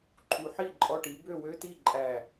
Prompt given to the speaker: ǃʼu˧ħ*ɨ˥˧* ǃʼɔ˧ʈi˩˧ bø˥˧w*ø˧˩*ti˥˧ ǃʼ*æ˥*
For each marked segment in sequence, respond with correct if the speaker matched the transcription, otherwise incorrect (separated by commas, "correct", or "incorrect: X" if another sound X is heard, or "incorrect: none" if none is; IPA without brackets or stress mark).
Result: incorrect: i˥˧, incorrect: ø˥, incorrect: æ˧˩